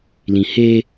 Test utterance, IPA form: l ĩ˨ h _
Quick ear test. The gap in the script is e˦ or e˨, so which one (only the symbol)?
e˦